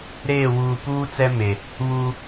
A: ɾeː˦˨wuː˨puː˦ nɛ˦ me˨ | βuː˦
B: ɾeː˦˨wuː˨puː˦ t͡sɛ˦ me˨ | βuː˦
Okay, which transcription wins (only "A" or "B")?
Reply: B